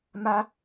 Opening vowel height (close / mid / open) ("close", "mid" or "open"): open